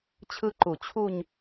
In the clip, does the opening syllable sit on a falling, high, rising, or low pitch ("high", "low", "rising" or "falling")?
high